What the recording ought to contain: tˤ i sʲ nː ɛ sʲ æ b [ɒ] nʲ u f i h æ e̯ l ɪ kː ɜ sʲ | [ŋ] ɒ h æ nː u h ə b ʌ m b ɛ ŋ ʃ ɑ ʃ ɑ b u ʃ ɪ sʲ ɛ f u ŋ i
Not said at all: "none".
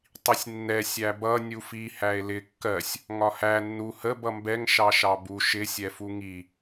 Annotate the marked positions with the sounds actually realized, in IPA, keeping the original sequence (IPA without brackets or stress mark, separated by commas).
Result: ʌ, ŋ